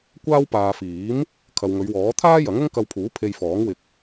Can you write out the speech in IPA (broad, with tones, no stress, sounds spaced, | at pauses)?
kʷ aː˥ w p aː˨ f iː˨˥ m | kʰ ɐ˨ w ŋ ɵ˨˧ ɥ w ɔː˨˥ t̪ʰ aː˥ j ɐ˨˥ ŋ ʊ˥ ŋ k ɐ˧ w pʰ uː˨˥ pʰ e˧ j f ɔː˨˥ ŋ w ɪ˧ k̚